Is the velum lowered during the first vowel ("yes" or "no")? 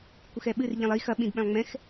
no